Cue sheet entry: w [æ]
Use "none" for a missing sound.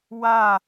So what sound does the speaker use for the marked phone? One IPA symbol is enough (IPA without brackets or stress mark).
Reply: a